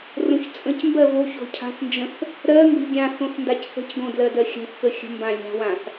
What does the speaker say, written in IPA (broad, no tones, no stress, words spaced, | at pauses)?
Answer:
rõçt͡sʼə̃cmbɜ voç o̤cʰa̤θnd͡ʒə̃θ | ɾɜ ŋɡə̤lʲɡʲãθõθ ndacθə̤cɡõ dlɜdɜxʲa̤θkə xʲə̤ mbãlʲa̤wãθ